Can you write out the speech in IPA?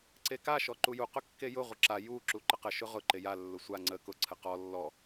ǀeka ʃɔǃuju qʊkːejʊ ʁʷəǁa ju ǁuǃəqə ʃʊʁʊ ǃeja lːʊsʷa ŋ͡ǀə kʊ ǀʰəqɔ lːɔ

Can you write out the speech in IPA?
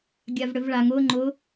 ɡʲavɽʏvɭaŋ ʊː ŋ͡ǃʊ

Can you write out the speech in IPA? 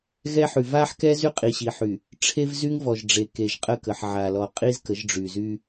ɣɛ˦ħy˨v a˦ħkɛ˦ zy˦qʼi˨ɕi˨ħy˨ | ʈ͡ʂʰe˦vzy˦ŋvɔ˨ʒ ɖ͡ʐe˨ke˨ʒqʼə˦˨kə˨ħ ʕa˨lɔ˨qʼi˦z kə˨˦ʒɖ͡ʐy˨zy˦

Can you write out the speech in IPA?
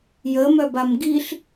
jəmœbam ɡiɬ

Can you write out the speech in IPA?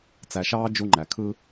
t͡sæ˨ʃɑː˦ d͡ʒu˦ŋ͡ǃæ˨kʰɯ˦

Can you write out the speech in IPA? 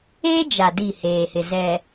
eː˦d͡ʒa˨ di˦˨heː˨hɪ˨ zɛ˨

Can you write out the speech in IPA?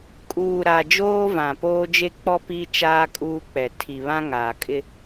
kʼuː˨ɾa˨ d͡ʒoː˦vã˨poː˦ d͡ʒe˦k͡pɔ˦ pi˦ t͡ʃaː˦kʼuː˦k͡pɛ˨ tʰi˨βã˦ ŋaː˨ kʼɪ˦

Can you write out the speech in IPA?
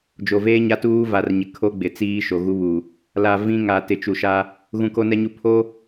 d͡ʒo˨veː˦ ɲa˦tuː˦va˨rɲɪ˨ kʰo˦ɡ͡bɪ˨t͡siː˦ ʃo˨ɣu˦βu˨ | la˨ vĩ˦ŋa˨ tɪ˨t͡ʃu˨ʃa˦ | ɣũ˨ko˦nɛ˦ɲu˦ pʰo˦

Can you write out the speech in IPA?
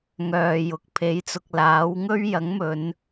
ŋœː˨jʊ˨k̚ pʰe˨˥jt͡sʊ˨k̚laː˨˥wŋɵ˥ɥ jɐ˨˥ŋmɵ˨˧n

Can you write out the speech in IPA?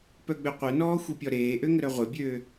pœɡ͡bøqʷœnɔː xʷipʲɔɾeːʔø ŋəɾœʁʷebʲøː

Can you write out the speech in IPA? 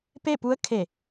pe˥˨pu˧˥ə̯ kʰe˧˩

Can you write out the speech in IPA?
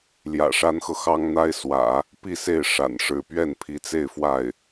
ljä̰˨˩ʂa˥nxɤ˨ xɑ˥ŋn̪a˥ɪ̯swä̰˨˩˦ | pi˥˧se˥˩ɪ̯ ʂa̰˨˩nʂɻ̩˧˥ pɥɛ˥˩npʰi˧˥t͡se˥˧ɪ̯ fwa˥˩ɪ̯

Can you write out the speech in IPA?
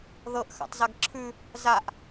ðɤʔxa̰tˤzaɡ ǁʰʉ | zaʔ

